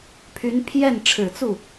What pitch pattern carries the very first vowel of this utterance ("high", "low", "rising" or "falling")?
rising